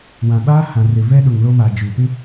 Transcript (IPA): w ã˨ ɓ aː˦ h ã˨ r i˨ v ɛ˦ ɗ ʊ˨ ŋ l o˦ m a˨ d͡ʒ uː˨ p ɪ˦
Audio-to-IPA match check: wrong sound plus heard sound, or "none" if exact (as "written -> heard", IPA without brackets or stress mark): i˨ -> ɪ˨